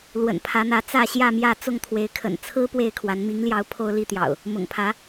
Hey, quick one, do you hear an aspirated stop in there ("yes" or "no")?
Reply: yes